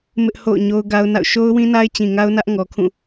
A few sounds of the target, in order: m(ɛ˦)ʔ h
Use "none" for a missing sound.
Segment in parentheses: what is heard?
ɪ˦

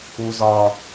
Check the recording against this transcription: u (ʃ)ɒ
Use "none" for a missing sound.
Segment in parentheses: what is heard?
z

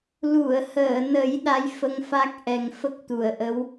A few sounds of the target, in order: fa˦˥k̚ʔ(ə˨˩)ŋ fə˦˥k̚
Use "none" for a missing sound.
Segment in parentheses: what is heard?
ɛ˨˩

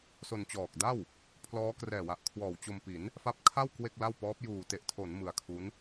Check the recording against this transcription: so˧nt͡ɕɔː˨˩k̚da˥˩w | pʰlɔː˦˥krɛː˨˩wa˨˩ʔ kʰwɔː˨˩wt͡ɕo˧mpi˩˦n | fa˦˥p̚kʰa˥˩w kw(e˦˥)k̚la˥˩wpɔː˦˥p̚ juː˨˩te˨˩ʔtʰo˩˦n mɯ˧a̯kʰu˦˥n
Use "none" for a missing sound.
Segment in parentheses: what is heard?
e˥˩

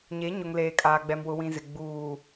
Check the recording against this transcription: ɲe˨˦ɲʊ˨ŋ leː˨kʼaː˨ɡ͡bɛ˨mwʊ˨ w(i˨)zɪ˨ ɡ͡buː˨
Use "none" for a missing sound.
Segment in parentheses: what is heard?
ĩ˨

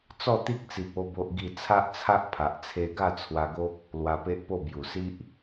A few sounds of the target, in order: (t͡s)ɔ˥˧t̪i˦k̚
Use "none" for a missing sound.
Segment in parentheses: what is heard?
t͡s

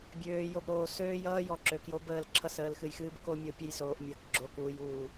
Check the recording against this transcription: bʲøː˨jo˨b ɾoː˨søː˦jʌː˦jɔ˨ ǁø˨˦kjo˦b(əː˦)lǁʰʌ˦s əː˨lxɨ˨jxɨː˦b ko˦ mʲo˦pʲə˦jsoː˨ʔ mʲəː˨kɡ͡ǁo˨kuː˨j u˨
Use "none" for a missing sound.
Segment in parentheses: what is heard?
əː˦˨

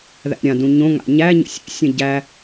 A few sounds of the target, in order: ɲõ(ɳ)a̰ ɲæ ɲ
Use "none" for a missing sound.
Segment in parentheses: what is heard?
ŋ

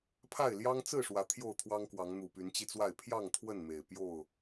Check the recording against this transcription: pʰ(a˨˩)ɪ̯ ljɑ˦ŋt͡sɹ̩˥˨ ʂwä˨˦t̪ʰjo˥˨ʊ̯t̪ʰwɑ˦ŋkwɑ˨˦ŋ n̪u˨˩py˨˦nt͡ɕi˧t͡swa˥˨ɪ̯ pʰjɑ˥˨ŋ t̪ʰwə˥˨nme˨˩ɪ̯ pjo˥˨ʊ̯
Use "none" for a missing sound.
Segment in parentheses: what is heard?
a˥˨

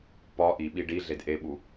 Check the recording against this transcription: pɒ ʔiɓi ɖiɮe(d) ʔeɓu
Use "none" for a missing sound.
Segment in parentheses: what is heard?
d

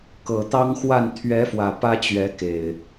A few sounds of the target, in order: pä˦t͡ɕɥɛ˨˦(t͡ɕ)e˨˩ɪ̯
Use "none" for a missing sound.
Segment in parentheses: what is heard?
k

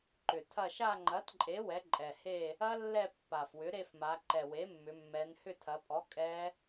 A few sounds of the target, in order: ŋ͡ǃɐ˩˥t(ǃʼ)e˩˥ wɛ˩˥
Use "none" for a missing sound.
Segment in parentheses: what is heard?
ǃʼ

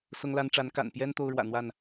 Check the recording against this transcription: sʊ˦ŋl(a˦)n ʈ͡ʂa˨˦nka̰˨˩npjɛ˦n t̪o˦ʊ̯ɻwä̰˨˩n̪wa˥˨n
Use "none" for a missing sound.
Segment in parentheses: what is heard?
a˦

